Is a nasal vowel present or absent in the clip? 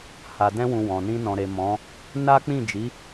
present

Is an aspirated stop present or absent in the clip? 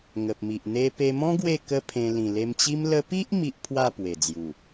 present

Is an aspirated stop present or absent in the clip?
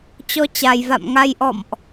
absent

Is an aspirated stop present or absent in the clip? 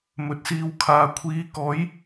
present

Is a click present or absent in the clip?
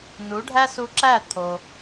present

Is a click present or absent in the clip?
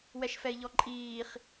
present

